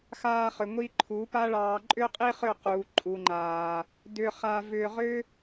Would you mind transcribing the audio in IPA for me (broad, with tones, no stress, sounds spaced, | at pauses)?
x aː˧ χ ʏ˨ ŋʷ i˦ ǃʰ u˨˦ p a˦ ɭ ɑː˧ ǃʼ ʏ˦ qʼ i˦ χ ʏ˦˨ q uː˨ ǃʼ u˨ ŋ͡ǃ aː˨ | d ʏ˧ χ a˧ v ʏː˧ ʁ ʏ˦